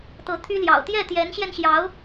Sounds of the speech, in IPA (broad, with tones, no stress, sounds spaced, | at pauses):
t̪ ɤ˧˥ t̪ʰ y˥ l j ɑ̰˨˩ ʊ̯ t̪ j ɛ˥˩ t̪ j ɛ˧˥ n ɕ j ɛ˧ n ɕ j ɑ˧˥ ʊ̯